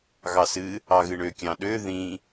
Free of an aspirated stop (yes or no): yes